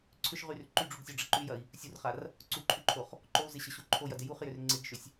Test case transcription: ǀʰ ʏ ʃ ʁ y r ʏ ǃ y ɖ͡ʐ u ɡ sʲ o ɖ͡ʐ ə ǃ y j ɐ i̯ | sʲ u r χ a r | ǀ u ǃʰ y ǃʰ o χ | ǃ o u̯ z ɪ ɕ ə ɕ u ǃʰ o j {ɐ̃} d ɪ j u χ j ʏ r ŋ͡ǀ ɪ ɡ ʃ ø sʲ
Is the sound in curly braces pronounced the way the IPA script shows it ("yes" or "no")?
no